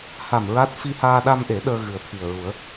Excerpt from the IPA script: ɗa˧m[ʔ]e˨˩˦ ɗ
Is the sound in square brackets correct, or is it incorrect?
correct